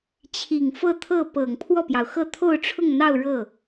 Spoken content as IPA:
t͡ɕʰi˨˩ŋfɤ˥˧t̪ʰɤ˥˩ pɤ˨˩ŋ pʰwɔ˥˩pjɑ˩ʊ̯xɤ˥˧ t̪ʰo˥˧ʊ̯ʈ͡ʂʰʊ˥˧ŋn̪ɑ˥˧ʊ̯ ɻɤ˥˩

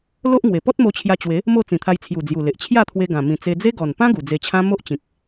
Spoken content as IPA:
lo˦ʔ ŋwe˨˩ pɔ˦t̚mo˧t͡ɕʰja˧t͡ɕwe˨˦ | mo˥˧ t͡sĩ˨˩t̪ʰa˧jt͡sʰju˨˩ d͡zju˨˩le˨ʔ t͡ɕʰja˥˧t̪ʰwe˧ɡã˨˩ mĩ˨˩t͡se˧d͡ze˦ ɡɔ˨˩npã˦ ɡu˨˩d͡ze˧t͡ɕʰã˦ mo˦ʔt͡ɕĩ˨k̚

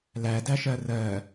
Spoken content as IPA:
lædæʃɜ rɜ

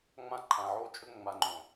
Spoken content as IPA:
ŋ͡mã˦˨ǃʰã˨ʕo˦t͡ʃʼɵ˦ ŋ͡ma˨ŋ͡ǃõ˨

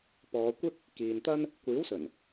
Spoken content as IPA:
pɔː˨˧kʷɪ˥k̚ | kiː˨nt̪ɐ˥n | kʷiː˨˥wsɵ˨˩n

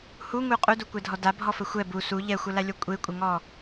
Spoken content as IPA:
huŋu qʼudukʷɛdʱɔ dabʱɔfə xʷɛ bu su ʎɛxʷəlalʲɔ kʷʼekʷʼɪŋɔ

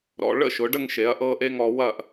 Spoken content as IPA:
ɾɔ̰˩˧ ɭə̰˥˧ʃʊ˩˧ɖə˥˧ŋʃe˩˧ɐ̯ ʔɤ˥˧ʔe˥ ŋɔ˧wɐ˥˧ʔ

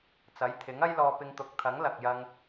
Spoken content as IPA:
t͡sɐ˨˥jt̪ʰɪ˨˥ŋ ɐ˥jlɔː˧ pɪ˧ŋt̪ʊ˨˥k̚ t̪ʰɐ˨˥ŋlɐ˨k̚jɐ˧ŋ

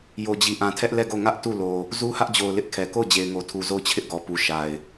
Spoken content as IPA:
jo˨d͡ʑi˨ ʔã˨tʰɛ˦ʔlɛ˦˨ɡo˦˨ ŋä˦ʔ tu˦˨lo˨ | zu˦hä˦ʔd͡ʑo˨ʊ̯ lɪ˦ʔkʰɛ˨ ko˦˨ʊ̯d͡ʑe˨ɪ̯ŋo˨tʰu˨ zo˦˨ʊ̯t͡ɕʰɪ˦ʔɡɔ˨pu˨ ʃa˨ɪ̯

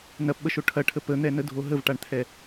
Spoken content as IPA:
nɐpɓəʃo ʈʰɐʈʰə pən̪ɛnədʱo ɦəvʈaɳt̪ʰɛ

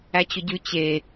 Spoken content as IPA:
æt͡ɕʊɟʉ t͡ɕe

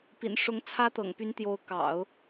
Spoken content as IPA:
pḭ˨˩nʂʊ˧˥ŋ t͡sʰä˥ t̪ɤ̰˨˩ŋpy˧˥n t̪jo˧˥ʊ̯kɑ̰˨˩˦ʊ̯

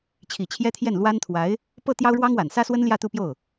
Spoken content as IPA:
t͡ɕʰi˨˩t͡ɕʰjɛ˥t̪ʰjɛ˥˩n lwa˥nt̪ʰwa˧˥ɪ̯ | pɤ˥˩ t̪jɑ˥ʊ̯ɻwɑ˥ŋwa˨˩n sä˥swə˥nljä˥˧ t̪u˥˧pjo˥˩ʊ̯

